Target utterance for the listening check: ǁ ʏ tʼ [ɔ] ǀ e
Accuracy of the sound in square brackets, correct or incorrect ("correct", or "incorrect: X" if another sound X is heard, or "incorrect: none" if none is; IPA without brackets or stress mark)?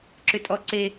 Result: correct